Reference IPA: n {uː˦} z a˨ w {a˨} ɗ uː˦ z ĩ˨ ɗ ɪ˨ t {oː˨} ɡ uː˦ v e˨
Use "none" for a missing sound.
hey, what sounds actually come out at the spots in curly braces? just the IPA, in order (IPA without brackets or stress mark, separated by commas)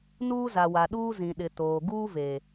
uː˦, a˨, oː˨